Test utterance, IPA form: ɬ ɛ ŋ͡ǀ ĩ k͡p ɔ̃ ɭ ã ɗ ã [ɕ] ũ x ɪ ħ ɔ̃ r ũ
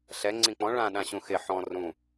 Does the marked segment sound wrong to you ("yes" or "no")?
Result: no